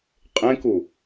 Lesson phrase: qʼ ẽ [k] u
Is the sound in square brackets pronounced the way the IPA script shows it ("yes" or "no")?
yes